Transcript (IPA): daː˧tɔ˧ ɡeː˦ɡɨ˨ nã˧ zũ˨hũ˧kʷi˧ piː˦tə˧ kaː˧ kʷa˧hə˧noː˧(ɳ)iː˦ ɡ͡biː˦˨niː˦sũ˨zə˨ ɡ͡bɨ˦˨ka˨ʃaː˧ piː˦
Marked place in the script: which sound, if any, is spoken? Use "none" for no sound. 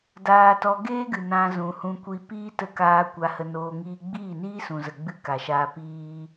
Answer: ŋ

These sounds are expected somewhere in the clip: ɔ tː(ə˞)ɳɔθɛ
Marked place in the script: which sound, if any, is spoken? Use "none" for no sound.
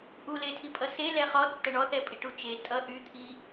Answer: ʌ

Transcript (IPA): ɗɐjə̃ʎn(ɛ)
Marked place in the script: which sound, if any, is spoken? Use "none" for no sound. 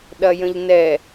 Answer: ɛ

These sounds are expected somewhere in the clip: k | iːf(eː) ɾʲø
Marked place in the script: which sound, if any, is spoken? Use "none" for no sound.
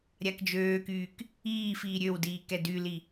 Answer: iː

